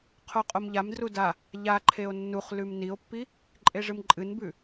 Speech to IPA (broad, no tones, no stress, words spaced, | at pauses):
qʰoqʼomʎamdru da | ʎaǃʰeo̯ nːuχ lʉmnio̯pːi | ǃʼeʐɨmǃʼɨnbʉ